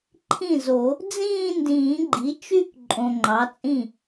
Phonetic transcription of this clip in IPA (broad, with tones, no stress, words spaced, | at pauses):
ǃʰĩ˥˩zo˨˩˦ | d͡zĩː˥˧ndĩː˨˩˦ɡ͡ǃi˩˥t͡ʃy˥˧k ǃʼõ˨ ŋ͡ǃɑ˩˥t͡sʼĩ˥˩